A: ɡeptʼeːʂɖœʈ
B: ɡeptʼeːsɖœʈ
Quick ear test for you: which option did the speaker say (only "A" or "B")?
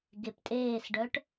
B